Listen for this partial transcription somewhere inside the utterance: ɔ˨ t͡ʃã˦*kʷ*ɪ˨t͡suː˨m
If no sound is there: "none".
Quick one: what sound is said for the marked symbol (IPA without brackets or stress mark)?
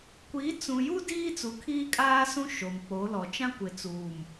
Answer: kʷ